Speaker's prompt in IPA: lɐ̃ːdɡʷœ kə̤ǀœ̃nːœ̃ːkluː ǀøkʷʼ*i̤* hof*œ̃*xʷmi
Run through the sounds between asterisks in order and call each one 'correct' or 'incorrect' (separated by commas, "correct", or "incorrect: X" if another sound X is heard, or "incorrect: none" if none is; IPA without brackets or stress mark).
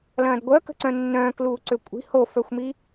correct, incorrect: œ